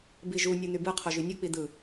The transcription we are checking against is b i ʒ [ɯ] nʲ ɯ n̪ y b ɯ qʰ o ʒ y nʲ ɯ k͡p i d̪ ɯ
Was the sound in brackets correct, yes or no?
no